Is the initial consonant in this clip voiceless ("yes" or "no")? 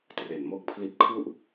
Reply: yes